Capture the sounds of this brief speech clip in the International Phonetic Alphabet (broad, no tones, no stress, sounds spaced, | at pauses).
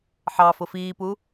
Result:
ħ ɑ f ʊ f iː p u